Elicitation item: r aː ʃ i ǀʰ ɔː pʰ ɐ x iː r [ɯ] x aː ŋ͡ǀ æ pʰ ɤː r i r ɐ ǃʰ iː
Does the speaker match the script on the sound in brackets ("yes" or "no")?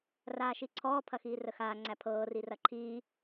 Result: no